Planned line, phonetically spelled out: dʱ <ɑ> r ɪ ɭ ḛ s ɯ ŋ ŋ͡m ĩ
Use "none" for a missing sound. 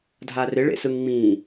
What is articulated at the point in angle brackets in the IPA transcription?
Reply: a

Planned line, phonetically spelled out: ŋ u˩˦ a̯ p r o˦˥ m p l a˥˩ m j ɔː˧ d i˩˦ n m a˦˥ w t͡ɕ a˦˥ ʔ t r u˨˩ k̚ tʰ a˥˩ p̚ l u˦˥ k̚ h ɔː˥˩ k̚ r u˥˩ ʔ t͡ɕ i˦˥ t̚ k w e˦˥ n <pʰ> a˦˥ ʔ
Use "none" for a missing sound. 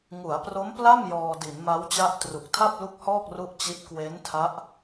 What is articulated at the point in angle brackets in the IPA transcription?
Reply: tʰ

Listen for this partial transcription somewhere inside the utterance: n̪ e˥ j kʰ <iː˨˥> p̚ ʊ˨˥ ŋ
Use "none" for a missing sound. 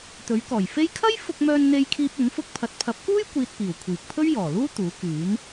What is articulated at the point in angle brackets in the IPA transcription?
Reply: iː˥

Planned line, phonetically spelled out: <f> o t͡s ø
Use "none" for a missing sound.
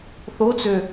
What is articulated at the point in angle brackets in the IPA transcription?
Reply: θ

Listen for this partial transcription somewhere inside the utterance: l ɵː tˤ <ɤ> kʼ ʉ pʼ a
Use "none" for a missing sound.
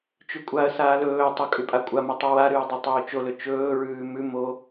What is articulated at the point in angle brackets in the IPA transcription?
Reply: ɵ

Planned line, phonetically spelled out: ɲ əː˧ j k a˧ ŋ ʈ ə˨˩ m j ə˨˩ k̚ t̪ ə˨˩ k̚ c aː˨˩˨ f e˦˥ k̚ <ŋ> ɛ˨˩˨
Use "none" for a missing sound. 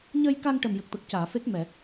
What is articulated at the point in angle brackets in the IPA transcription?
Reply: m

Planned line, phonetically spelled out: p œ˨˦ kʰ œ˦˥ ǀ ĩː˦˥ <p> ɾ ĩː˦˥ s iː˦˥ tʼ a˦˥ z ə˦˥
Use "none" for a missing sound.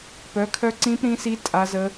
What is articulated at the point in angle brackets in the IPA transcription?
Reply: p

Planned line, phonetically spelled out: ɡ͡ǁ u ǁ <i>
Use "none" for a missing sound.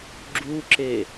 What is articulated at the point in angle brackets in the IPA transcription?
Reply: e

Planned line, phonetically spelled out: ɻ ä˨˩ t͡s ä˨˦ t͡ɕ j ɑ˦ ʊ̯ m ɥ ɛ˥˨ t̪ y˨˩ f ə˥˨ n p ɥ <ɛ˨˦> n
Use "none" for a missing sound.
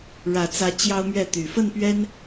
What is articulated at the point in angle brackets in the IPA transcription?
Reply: ɛ˦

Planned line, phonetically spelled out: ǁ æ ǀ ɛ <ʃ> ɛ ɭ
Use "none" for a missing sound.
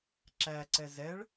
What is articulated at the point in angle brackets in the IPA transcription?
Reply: z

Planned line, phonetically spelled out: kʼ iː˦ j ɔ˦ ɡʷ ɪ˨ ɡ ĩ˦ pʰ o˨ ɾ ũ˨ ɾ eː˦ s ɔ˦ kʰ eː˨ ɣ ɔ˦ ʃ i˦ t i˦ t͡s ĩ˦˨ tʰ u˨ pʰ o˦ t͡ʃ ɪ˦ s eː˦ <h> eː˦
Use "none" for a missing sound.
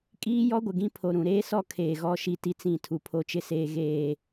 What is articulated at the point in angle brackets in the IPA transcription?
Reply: ɣ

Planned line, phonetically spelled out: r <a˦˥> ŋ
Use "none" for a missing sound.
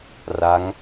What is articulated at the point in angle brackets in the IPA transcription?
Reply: a˦˥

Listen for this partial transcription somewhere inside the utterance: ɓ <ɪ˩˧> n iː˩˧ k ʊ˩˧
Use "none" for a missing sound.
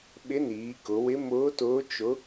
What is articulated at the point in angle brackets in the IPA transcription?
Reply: ɪ˧˥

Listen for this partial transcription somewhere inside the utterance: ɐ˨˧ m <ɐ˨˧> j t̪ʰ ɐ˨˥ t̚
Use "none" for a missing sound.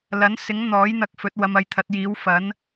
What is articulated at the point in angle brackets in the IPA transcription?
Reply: ɐ˨˧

